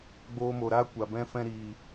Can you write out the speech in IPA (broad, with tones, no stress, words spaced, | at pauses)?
ɡ͡boː˧mo˨ɾaː˦ kʷa˨bɛ̃˦ fɛ̃˧ɾiː˨